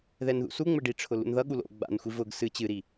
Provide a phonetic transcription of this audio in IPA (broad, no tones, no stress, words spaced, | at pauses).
ðɛnðṵsuŋ͡mɘ ɖiʈ͡ʂʰʊ lṵnðʌɠu lo̰ ɡ͡ba̰nxʷi vʊɡ sɨ t͡ɕɨɾi